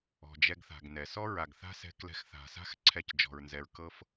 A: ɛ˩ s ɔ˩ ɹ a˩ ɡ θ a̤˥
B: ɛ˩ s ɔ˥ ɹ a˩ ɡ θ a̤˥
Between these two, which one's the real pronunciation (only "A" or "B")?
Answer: B